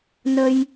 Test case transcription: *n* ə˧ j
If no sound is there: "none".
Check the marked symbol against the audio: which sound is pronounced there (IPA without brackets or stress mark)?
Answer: n